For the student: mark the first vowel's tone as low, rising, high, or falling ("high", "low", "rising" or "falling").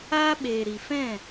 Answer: high